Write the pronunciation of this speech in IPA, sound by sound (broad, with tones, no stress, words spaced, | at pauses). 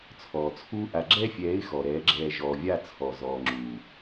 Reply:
t͡sʰɔː˨t͡sʰuː˦ ʔa˨ɡ͡ǁɛ˦fʲɛː˨˦ɪ̯ xɔ˨ɾɛː˨˦ɡ͡ǁɛː˧ ʒɔː˨vʲa˦˨ t͡sʰɔ˨ zɔː˨ŋ͡ǁuː˨